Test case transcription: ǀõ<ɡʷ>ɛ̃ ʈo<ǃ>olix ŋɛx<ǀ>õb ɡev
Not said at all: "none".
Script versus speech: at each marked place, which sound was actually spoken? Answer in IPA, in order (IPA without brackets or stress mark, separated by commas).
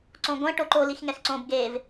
ɡʷ, ǃ, ǀ